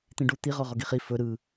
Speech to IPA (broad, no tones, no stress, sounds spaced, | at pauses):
t̪ ĩ ɖ u t̪ i ʁ ɔ ʁ ɔ ɡ i χ i f ɵ ɾ ɯ